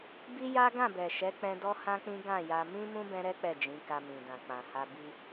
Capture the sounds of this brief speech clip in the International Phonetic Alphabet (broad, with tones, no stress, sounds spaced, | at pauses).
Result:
b i˦ j a˦ ɡ ã˦˨ b ɛ˨ ʃ ɛ˨˦ k͡p ɛ̃˧ d ɔ˦ h ã˦ k͡p ĩ˦ ɡ ã˦˨ j a˧ m ĩ˦ m ũ˦ b ɛ̃˦ ɾ ɛ˦ k͡p ɛ˦˨ d͡ʒ ĩ˨˦ k a˧ m ĩ˨ d ã˨ k͡p ã˨ h a˧ b i˧